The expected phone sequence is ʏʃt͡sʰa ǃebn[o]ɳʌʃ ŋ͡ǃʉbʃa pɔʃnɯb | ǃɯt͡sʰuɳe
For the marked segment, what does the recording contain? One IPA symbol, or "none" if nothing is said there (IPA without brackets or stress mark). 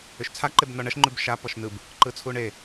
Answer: ɔ